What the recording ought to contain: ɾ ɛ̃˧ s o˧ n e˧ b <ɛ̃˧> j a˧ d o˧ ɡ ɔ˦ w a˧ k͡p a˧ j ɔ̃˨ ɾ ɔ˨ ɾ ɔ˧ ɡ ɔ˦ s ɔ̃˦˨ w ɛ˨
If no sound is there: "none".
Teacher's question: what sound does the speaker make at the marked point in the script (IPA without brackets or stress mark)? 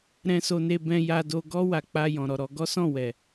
ɛ̃˧